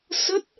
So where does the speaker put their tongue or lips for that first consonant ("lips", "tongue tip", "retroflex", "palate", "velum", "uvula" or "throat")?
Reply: tongue tip